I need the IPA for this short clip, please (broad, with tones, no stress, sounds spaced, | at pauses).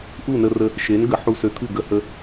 ʔ u˥˩ n ə˧ r ə˧ | ʃ e˩˥ n ɡ ə˩˥ ħ u˧ s ø˧ t̪ʰ ɨ˥˩ ɡ ə˧ h ə˧